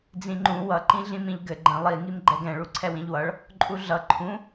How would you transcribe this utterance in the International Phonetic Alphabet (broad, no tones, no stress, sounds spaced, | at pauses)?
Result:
d͡z ĩ ŋ͡ǃ ũ w ʌ ǃ ĩ ɮ ĩ m ĩ ʎ ɡ ɘ ɡ͡ǃ ə̃ lˠ i ŋ i m ɡ͡ǃ ɛ ɡ ɛ̃ ɭ u ǀʰ ɛ w ĩ ʎ w ʌ ɭ | ǃʼ u ɮ ʌ ǃʰ ũ